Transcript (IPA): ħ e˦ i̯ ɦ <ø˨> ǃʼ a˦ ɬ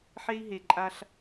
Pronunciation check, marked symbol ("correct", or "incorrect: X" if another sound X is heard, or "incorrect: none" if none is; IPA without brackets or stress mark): incorrect: e˨